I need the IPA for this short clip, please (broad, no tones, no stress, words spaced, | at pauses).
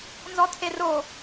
nzɔtʰero